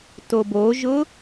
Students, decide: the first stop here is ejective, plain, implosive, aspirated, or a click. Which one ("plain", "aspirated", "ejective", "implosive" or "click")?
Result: plain